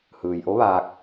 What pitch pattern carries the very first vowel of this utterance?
low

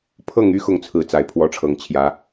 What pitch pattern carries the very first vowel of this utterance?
falling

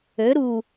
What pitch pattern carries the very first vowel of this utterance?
rising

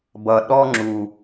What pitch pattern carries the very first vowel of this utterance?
low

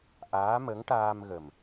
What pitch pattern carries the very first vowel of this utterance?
rising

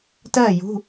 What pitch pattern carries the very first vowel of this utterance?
falling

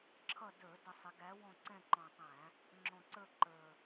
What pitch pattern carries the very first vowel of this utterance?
falling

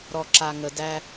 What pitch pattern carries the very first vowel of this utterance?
low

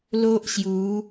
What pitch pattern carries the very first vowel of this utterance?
high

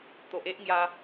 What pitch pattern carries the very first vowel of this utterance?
low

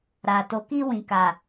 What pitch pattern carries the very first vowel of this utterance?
low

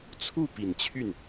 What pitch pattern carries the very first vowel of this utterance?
falling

